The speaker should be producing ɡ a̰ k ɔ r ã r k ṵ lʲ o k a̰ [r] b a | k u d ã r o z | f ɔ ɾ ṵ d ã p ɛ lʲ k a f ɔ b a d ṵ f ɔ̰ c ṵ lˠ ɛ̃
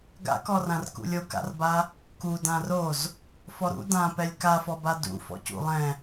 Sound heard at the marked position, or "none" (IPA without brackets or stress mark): r